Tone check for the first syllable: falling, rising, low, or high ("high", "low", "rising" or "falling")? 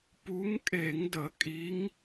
rising